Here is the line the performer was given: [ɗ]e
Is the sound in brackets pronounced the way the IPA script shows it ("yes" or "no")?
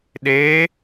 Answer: yes